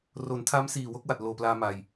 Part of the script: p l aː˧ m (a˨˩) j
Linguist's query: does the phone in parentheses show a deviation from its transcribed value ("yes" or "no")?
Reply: no